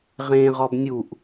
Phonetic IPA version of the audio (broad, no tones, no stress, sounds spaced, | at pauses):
ʁ ẽ ʁ ɔ b nʲ u ʔ